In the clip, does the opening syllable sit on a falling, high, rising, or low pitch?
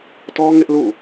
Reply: high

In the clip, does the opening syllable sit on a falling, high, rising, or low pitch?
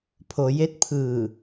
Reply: low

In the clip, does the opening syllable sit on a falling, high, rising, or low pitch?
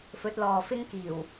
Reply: rising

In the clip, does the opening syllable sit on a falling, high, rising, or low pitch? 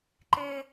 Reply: high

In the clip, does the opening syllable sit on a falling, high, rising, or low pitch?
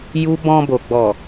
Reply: high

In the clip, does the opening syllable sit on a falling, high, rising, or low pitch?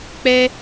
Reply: high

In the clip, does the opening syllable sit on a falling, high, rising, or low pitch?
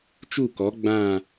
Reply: falling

